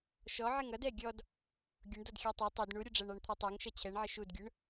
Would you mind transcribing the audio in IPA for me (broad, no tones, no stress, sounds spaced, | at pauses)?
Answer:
ʃ ɔ ʕ ɪ ŋ ʌ d ɛ ɡʲ ɔ d | ɡʲ ʊ ɳ d ɔ d xʲ ɑ tˤ ɛ tˤ ɛ d ɳ u ɾʲ ʊ ɖ͡ʐ æ ɳ ɑ ɳ t̪ʰ ɔ tˤ æ ŋ ʃ ʌ t͡ɕʰ ɛ ɳ ʕ ə ʃ u d ɡʲ ʊ ɳ